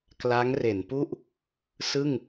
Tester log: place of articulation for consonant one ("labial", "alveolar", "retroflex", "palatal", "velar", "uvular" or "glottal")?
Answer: velar